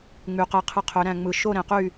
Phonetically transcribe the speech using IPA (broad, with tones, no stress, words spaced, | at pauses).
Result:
ŋ͡my˩˧qe˧qʰɯ˧ qʰø˩˧ɾæ̃˨˩ŋ͡mɯ˨˩ ʃo˥˨ɾẽ˩˧qy˥˨